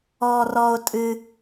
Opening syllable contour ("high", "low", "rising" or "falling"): high